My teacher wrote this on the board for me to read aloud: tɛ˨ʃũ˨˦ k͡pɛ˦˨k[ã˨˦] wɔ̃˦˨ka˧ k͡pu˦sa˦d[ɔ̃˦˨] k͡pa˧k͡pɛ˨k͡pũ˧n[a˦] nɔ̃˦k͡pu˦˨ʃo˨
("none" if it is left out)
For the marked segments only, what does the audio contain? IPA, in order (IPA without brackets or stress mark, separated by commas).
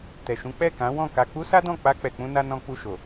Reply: ã˨˦, ɔ̃˦˨, a˧